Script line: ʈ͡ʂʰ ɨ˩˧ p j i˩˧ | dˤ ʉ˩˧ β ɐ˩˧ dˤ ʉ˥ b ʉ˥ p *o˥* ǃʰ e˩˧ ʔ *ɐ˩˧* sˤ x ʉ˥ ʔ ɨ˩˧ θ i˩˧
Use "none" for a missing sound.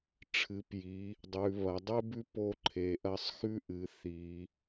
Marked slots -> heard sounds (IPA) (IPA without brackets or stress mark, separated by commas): o˥, ɐ˥